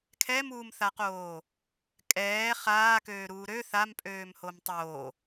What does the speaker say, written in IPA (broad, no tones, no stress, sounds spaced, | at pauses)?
kʰ ɛ m uː m θ a q oː | kʼ ɛː χ aː k øː ɾ uː ɾ ø θ a m pʼ øː m h o m tˤ oː